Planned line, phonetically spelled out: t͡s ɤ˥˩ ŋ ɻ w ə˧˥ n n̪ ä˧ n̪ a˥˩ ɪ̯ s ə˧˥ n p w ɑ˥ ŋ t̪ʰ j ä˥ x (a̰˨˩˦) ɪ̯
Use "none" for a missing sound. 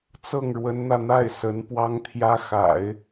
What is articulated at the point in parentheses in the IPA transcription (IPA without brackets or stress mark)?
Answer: a̰˨˩˦